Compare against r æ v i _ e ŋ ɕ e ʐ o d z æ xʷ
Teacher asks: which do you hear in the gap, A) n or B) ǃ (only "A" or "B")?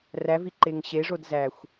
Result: B